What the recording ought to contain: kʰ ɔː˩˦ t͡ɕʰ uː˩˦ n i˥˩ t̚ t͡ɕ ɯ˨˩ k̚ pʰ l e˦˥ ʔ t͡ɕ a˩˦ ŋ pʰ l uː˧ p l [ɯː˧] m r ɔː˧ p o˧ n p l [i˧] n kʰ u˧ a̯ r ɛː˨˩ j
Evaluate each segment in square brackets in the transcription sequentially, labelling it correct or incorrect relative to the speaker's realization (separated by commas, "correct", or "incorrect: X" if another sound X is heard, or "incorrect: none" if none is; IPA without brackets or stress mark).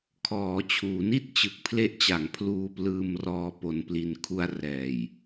correct, correct